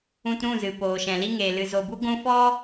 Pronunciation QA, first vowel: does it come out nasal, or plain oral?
nasal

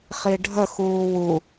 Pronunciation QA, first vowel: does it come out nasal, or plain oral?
oral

